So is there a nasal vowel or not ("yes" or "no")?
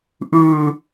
no